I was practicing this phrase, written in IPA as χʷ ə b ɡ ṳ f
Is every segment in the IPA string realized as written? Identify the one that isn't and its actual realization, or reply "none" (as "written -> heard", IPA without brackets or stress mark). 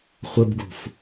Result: none